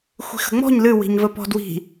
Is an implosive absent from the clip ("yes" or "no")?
yes